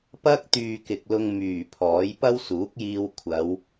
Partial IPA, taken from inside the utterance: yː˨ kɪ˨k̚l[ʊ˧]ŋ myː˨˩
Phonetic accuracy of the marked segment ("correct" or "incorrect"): correct